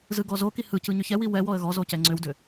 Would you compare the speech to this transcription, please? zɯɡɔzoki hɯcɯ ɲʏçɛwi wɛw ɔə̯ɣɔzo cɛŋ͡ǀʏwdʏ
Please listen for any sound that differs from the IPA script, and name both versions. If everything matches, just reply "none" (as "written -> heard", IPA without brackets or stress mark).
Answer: none